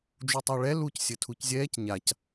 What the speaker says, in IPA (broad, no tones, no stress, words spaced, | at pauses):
d͡ʒutˤaɭɛ luc sʲɘtʰuczʲɛːc ɲac